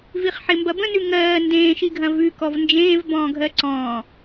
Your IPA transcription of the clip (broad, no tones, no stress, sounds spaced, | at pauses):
v i χ ħ ɪ m b ɐ b ə̃ n ʉ ŋ ɜː n d ẽː ʃ i ɡʱ ɐ̃ v ʉ k ɔ v n d͡ʒ ẽː v b ɔ̃ː ɡʱ ɜ ǀ ɔ̃ː